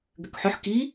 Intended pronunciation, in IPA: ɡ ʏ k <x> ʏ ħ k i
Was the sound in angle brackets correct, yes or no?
no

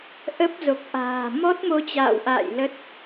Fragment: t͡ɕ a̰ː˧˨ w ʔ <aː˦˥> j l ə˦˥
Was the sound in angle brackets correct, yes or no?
no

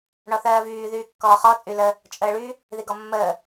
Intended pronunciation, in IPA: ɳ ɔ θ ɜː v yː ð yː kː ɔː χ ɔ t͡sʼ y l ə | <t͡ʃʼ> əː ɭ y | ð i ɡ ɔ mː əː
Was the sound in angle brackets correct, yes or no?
yes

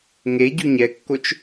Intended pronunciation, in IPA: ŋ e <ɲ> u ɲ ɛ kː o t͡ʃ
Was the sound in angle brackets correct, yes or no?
no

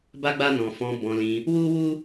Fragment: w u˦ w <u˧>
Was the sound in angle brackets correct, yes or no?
no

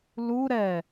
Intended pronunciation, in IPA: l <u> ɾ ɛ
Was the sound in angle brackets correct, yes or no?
yes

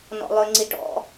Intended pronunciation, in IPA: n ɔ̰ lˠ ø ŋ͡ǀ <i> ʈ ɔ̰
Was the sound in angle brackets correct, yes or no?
yes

